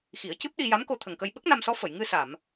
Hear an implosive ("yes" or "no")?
yes